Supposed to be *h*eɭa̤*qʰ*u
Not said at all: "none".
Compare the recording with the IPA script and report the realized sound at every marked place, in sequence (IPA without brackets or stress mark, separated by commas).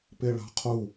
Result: p, qʰ